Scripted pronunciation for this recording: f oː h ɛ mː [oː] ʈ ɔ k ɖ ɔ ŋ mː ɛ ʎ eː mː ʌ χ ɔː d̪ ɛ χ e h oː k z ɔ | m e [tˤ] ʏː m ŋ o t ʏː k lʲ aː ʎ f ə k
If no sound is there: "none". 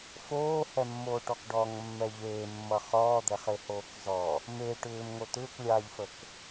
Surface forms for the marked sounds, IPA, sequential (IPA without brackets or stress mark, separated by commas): oː, ʈ